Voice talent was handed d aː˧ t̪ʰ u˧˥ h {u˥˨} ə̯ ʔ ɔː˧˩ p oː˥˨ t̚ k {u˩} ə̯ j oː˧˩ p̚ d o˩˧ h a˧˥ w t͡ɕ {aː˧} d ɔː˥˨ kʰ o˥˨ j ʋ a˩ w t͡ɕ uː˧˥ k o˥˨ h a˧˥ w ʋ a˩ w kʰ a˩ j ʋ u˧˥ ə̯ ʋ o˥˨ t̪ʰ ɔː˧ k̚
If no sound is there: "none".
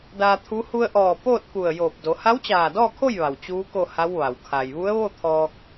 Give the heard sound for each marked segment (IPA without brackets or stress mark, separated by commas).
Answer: u˧, u˧˩, aː˧˩